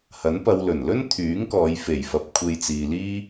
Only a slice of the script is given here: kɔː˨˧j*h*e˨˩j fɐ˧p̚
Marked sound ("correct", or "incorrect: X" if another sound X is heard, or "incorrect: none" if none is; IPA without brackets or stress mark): incorrect: f